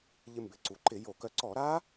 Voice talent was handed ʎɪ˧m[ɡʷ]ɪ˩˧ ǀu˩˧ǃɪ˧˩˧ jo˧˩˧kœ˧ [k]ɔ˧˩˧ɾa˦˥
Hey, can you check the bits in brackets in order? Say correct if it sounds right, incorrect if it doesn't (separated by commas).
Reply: incorrect, incorrect